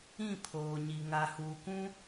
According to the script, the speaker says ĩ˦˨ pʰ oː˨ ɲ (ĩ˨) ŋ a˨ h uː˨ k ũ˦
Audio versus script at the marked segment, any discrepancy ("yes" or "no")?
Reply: yes